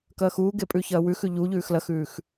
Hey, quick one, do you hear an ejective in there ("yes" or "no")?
yes